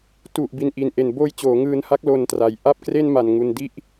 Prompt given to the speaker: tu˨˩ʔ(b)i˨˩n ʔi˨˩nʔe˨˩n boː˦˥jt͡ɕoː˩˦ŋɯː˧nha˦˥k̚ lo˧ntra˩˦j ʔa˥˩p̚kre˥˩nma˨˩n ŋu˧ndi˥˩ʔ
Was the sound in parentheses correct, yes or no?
yes